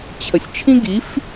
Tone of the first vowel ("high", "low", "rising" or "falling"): low